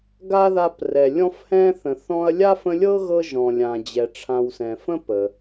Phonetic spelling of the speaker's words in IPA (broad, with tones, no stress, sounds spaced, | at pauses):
ɡ a˥ ð a˦ p r ɛ˨ lʲ ɔ̃˥ f h ɛ̃˥ θ ə̃˨ θ ɔ̃˦ ɐ̯ lʲ a˥ f ə̃˦ lʲ ɤ˥ ɣ ɤ˥ ʒ ɔ̃˨ lʲ ã˩ d͡ʑ ɛ˩ ʈ͡ʂʰ ã˨ w s ɛ̃˩ f ə̃˥ p ə˩